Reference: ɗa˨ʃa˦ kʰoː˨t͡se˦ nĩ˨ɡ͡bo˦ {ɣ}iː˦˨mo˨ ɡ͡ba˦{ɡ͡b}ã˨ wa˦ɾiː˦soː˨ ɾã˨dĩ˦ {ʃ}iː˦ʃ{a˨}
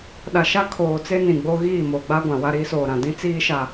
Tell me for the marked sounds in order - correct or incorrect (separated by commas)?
correct, incorrect, incorrect, correct